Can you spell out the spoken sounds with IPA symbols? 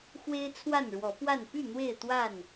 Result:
x w e˦ ɪ̯ t͡sʰ w a˥˨ n ɻ w ɔ˨˦ p w a˥˨ n p y˥˨ n̪ w e˥˨ ɪ̯ t̪ w a˥˨ n

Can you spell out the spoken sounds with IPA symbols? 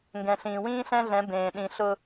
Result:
ŋ ɡ ɛ̃˨ ɬ ĩː˨ w ĩː˦ ɬ ɛ̃˦ ɮ ɛ̃˨˦ b ẽː˨ ɗ ĩ˨ ɬ ʊ˦

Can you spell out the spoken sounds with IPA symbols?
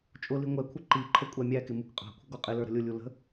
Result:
t͡ʃʼ ʊ l i ŋʷ ɛ kʷʰ ə ǃ i ǃʰ ə kʷʼ æ mʲ æ k ɪ m u k qʼ ɑ̤ kʷʰ ə̤ ɡ ɔ qʼ ɪ l ə˞ ɾ ə̤ lʲ ʊ lʲ u l ə̤

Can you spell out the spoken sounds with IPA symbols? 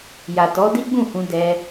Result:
j a˨ t ɔ˨˦ d i˦ ɡ͡b ũ˦˨ h ũ˧ d ɛ˧

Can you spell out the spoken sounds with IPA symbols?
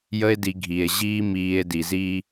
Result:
j ə˦ e̯ d i˧ ɡʱ i˨ e̯ ʑ iː˧ m iː˧ e̯ d i˨ z iː˧

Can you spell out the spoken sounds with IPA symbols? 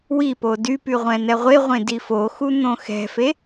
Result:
w i p o d y p y ʁʷ ɛ̃ n̪ ɛ ʁʷ e ʁʷ ẽ d i f o x u n̪ õ x ɛ̤ f e

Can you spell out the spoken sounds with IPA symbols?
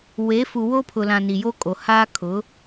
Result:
w e˨˦ f u˨ w o˦ pʰ ʊ˨ l ã˨ n i˨ j o˦ kʼ o˨ h aː˦ kʰ ʊ˨˦

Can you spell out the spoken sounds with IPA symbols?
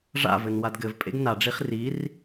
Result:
ʐ a̰ v ɘ n w a d ɡ ɘ v pʼ ḛ ɡ n a ɖ͡ʐ i χ r i r

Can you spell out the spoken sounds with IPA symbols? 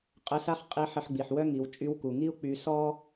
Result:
qʼ ə˧˥ s a˥ χ qʼ i˧˥ ħ ə˧ ħ ɡ͡b i˩ ħ w œ˥ ŋ i˩˧ w t͡ʃʼ y˧˥ w k u˩ ŋ i˥ u̯ k͡p y˧ s ɔ˥

